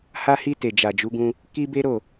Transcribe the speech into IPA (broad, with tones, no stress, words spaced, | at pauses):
ha˧hi˧ te˨d͡ʒa˨d͡ʒu˨˦ɡũ˧ | ki˦be˦ɾo˦˨